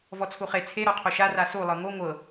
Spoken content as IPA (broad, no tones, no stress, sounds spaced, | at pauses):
v ɔ t͡sʰ u χ e t͡sʰ e ɾ ɔ qʰ o ʃ a r a s u lˠ ɤ ŋ o ŋʷ ɤ